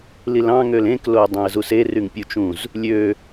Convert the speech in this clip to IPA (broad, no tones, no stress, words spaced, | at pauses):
lilɑ̃ ŋølẽk loə̯dˤæ̃ə̯zuse ryŋpʲut͡ʃũz | lʲø